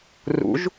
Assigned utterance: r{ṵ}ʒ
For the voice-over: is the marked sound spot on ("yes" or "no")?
yes